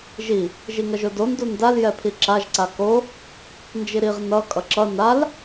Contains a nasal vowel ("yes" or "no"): no